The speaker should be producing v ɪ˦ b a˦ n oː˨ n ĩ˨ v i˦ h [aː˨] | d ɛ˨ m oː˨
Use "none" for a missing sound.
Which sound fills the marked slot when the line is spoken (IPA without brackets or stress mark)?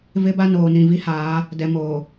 aː˨˦